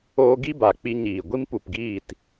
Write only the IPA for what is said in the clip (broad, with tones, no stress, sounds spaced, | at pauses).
oː˧ ɡ i˦ b a˨ k͡p i˧ ɲ iː˨ ɡʷ i˦ m p u˨ p ɡ iː˦˨ t